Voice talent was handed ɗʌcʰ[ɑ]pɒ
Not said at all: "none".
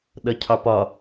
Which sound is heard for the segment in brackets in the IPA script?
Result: ɑ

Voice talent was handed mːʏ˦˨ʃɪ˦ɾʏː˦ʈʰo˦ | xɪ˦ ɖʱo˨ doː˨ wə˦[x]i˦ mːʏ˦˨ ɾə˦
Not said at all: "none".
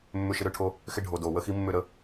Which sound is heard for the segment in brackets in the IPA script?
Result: x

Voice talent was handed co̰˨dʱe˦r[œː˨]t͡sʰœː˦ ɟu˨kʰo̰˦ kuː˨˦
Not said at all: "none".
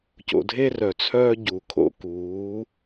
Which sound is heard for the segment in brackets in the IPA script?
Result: œ˨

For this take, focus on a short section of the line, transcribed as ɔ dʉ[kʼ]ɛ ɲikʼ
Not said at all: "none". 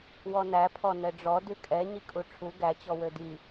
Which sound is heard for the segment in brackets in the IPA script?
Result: kʼ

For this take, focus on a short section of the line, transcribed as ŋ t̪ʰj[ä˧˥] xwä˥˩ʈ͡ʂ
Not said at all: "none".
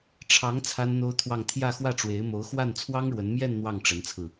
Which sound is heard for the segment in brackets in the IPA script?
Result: ä˥˧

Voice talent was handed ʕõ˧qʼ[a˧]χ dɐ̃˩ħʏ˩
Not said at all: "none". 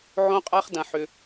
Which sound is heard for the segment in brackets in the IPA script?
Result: a˧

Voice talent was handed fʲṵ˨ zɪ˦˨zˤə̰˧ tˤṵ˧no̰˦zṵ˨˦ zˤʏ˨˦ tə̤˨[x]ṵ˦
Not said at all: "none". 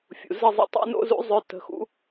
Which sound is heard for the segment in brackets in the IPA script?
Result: x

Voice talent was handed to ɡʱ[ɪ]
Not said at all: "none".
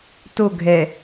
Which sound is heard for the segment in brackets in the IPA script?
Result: ɛ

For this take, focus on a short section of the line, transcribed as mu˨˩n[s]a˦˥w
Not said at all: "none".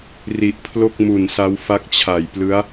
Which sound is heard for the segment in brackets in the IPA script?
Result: s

